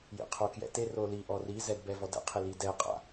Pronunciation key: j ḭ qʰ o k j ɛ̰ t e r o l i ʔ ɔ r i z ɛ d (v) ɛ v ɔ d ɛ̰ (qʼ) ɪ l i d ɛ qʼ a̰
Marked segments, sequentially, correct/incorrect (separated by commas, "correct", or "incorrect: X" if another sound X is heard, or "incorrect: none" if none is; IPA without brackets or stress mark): incorrect: b, incorrect: qʰ